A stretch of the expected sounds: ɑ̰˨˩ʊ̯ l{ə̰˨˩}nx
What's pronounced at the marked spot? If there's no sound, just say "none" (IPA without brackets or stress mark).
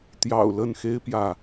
ə˥˨